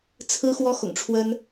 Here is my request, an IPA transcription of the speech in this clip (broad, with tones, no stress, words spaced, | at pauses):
t͡sʰɹ̩˥xwɔ˥ xʊ̰˨˩ŋʈ͡ʂʰwə˥n